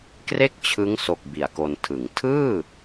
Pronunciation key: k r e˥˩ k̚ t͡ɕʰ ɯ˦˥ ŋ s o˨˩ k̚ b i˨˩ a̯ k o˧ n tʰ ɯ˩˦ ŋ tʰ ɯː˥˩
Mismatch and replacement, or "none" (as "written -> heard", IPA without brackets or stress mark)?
none